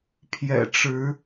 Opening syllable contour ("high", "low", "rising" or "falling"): low